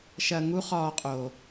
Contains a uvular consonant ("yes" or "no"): yes